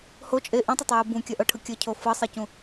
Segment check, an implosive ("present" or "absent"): absent